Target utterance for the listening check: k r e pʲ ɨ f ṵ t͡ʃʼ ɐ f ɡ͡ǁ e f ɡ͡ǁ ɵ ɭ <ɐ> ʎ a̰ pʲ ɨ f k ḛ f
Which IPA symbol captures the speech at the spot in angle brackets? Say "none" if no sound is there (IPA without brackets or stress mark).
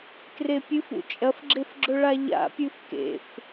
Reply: a